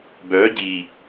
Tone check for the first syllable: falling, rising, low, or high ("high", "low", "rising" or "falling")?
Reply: rising